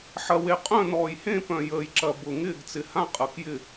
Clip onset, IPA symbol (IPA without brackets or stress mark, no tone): ħ